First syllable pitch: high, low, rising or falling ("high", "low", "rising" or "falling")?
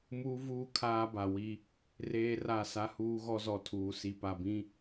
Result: high